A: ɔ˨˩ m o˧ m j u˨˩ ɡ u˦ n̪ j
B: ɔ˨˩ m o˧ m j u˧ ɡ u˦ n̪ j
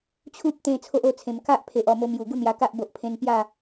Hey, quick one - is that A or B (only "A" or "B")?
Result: A